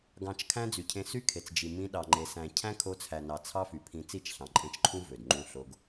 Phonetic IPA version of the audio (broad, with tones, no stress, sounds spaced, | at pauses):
ɡ ɑ̃˨ t͡ʃ kʰ æ̃˦ d͡z y˨ cʰ ẽ˧ s y˦ kʰ e˨ t͡s d͡ʒ i˨ m ĩ˧ ɗ ɑ˨ ŋ͡ǃ e˨ s æ̃˨ cʰ æ̃˦ kʰ o˧ t͡sʰ æ˨ n ɑ˨ t͡sʰ ɑ˦ f y˨ pʰ ĩ˧ t͡s i˦˨ t͡ʃ ɬ ɑ̃˨ ǃʼ ẽ˧ t͡ʃ ǃʰ ũ˦ v ø˨ d ŋ͡ǃ ũ˧ ɬ o˧ ɡ